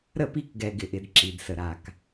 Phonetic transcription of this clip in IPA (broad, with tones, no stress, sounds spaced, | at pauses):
ɾ ə˦˨ p i˦˨ k ɡ ɛ˨ ɡ ɪ˨ ʔ ɪ˨ d ǁ i˨ d s ə˨ ɾ a˨ k